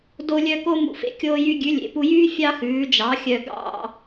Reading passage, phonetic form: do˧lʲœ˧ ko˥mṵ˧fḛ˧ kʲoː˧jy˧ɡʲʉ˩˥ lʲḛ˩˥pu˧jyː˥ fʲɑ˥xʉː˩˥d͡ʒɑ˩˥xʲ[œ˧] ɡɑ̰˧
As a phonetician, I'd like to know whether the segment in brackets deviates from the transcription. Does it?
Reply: no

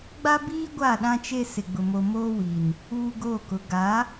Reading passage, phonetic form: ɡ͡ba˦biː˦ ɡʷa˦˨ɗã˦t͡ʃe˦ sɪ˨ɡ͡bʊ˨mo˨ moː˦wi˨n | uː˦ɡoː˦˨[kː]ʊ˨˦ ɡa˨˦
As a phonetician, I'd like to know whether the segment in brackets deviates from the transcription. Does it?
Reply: yes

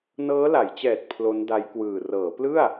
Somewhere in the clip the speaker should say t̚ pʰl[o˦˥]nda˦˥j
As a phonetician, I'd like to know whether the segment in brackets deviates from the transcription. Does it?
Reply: no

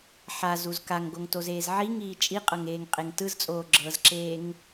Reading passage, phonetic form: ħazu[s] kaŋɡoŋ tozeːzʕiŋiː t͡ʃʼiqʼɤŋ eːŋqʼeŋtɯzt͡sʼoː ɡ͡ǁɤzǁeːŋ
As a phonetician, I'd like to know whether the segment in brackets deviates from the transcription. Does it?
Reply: yes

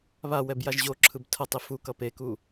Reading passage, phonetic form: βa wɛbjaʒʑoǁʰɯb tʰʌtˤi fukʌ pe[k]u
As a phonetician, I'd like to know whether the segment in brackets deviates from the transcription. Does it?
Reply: no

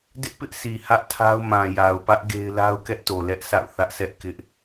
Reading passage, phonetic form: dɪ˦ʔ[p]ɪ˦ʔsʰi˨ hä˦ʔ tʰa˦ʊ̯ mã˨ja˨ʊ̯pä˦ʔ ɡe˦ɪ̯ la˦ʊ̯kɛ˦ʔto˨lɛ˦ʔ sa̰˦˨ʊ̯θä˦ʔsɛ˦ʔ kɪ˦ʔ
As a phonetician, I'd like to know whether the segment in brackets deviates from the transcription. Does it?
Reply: no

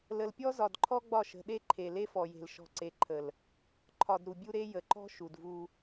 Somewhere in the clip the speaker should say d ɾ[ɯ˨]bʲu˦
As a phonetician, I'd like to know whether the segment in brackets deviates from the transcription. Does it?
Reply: yes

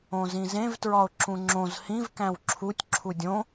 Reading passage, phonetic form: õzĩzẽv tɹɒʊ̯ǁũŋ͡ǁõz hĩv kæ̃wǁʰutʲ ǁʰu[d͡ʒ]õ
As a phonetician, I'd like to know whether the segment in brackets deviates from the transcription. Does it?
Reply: yes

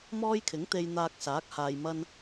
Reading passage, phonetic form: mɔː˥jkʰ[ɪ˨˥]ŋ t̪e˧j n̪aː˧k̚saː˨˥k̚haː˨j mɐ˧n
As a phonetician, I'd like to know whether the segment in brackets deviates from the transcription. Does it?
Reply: no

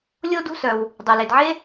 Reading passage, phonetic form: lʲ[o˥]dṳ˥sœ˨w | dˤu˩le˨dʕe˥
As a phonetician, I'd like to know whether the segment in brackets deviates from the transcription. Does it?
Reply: no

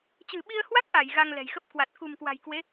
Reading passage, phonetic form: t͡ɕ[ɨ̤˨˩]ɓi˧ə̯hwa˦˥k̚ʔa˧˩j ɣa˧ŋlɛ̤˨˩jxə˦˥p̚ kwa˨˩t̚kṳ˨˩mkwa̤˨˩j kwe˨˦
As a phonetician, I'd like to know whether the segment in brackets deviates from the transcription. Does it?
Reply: no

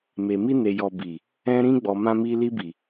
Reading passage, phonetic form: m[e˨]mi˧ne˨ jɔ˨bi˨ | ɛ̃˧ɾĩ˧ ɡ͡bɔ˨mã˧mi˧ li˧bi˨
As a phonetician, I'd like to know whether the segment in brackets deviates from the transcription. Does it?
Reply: no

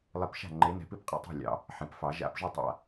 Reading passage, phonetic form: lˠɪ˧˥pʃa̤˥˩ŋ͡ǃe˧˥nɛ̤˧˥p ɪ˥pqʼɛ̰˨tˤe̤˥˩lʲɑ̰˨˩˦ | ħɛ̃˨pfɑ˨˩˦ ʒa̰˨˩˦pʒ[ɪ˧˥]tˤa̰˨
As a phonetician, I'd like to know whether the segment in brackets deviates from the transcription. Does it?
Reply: yes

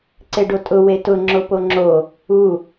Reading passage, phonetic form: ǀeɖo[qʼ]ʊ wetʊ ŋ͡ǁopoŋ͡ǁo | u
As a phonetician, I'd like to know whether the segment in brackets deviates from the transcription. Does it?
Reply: yes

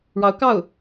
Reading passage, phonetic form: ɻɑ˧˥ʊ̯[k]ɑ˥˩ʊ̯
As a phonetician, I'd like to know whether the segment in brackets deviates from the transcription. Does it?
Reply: no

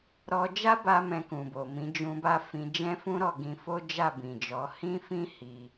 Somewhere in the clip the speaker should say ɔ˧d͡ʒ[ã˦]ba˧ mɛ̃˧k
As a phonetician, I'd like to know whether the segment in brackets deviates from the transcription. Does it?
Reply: yes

